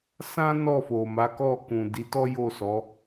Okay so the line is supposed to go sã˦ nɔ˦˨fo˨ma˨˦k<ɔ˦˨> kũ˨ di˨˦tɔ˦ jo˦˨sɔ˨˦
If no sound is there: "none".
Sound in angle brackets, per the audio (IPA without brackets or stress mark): ɔ˦˨